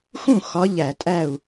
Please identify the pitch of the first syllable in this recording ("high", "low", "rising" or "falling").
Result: falling